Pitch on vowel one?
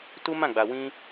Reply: high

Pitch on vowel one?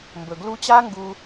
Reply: low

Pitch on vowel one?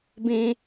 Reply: high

